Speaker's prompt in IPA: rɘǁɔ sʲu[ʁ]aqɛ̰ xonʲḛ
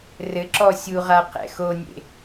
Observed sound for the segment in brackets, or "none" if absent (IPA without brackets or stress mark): ʁ